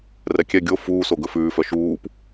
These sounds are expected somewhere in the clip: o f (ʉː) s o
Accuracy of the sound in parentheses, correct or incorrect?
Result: incorrect